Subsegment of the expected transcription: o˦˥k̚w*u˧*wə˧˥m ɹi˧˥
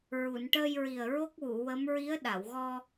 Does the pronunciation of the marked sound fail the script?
yes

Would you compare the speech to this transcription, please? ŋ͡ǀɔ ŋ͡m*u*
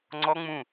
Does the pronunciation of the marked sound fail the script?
yes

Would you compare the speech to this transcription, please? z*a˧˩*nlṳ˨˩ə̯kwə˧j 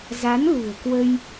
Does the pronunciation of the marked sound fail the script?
yes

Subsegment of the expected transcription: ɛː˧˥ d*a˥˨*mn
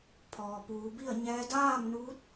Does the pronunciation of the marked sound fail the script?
yes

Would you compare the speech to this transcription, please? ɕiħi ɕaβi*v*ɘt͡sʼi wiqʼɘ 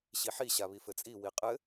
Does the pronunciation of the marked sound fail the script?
yes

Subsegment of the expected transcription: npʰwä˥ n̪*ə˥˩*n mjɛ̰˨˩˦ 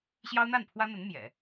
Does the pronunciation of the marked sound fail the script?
yes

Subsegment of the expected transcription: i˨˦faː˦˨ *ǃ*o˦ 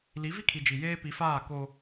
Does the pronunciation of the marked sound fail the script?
yes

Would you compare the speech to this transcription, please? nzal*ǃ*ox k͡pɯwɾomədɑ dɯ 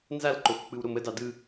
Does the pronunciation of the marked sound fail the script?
no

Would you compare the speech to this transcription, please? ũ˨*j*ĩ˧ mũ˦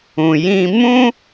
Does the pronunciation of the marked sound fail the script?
no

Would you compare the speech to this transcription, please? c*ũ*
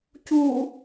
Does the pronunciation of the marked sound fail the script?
yes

